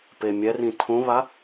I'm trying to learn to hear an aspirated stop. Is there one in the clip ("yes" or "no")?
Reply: yes